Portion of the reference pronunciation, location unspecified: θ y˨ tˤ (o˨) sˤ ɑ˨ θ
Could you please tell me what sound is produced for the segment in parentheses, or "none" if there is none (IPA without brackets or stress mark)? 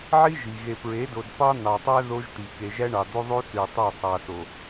o˦˨